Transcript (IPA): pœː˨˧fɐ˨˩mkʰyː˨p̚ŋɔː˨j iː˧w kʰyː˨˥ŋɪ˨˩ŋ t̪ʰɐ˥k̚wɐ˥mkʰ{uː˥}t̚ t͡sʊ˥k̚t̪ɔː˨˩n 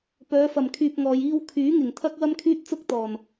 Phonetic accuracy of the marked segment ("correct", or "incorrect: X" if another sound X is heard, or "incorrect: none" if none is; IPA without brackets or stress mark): incorrect: yː˥